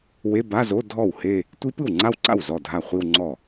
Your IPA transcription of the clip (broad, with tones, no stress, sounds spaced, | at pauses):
w e˧˥˧ b a˧˥˧ z o˧˥˧ dʱ ɔ˥˩ w h e˥˧ | tʷ i˦˥ p ɯ˥˩ w ŋ͡ǀ a˥˧ w ǀ a̰˥˩ w z ɔ˥˩ dʱ a˥˩ χʷ i˥˧ w ŋ͡ǀ ɔ˥˩